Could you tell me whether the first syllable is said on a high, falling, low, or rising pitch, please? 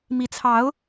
rising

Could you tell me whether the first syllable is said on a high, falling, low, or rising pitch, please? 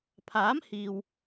rising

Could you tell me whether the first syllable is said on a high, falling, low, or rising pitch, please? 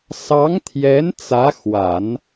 rising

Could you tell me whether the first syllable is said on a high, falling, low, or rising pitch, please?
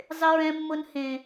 high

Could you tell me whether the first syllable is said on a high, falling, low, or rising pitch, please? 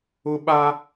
high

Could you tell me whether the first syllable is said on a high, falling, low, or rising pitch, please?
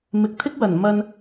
low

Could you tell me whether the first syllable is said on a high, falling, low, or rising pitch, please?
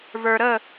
low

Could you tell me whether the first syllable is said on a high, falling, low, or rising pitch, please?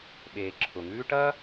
low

